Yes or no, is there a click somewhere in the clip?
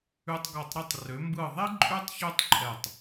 yes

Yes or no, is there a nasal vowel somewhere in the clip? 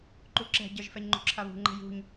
no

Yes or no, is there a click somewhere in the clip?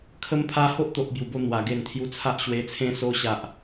no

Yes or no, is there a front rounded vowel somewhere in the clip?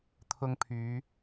yes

